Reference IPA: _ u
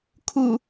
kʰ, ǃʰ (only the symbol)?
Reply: kʰ